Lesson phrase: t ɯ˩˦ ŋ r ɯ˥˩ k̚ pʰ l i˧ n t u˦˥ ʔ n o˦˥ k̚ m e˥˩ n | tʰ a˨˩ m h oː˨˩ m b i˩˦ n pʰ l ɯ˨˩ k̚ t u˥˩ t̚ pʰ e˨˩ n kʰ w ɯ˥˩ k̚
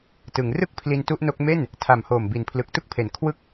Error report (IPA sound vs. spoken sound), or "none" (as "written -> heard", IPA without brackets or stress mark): t̚ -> k̚